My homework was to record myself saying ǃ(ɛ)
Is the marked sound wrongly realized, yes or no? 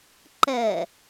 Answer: no